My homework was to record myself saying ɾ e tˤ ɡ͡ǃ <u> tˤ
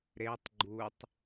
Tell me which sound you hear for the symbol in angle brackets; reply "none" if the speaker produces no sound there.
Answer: u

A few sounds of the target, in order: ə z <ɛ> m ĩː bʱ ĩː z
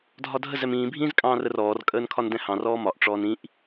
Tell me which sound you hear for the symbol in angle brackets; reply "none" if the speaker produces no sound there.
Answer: ɛ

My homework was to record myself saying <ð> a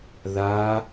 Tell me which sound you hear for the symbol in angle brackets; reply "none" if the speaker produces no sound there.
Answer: ð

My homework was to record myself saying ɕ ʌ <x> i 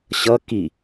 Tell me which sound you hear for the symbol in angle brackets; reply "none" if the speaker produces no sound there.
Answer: k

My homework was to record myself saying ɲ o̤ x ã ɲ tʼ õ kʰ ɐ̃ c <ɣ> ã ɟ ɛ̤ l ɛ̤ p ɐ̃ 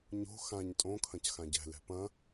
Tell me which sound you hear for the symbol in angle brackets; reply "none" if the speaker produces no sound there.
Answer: x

